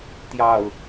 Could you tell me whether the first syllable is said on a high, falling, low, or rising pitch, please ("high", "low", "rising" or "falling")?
low